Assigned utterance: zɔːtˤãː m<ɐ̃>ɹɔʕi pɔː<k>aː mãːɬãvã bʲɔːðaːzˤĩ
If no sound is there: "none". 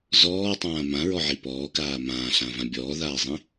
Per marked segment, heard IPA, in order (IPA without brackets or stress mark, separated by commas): ã, k